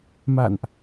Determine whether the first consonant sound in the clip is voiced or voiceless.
voiced